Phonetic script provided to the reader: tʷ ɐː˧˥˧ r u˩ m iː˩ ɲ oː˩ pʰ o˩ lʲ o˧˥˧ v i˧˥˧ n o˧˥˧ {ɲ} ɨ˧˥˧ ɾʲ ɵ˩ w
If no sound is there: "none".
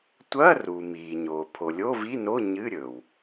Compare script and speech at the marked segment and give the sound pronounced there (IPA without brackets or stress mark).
ɲ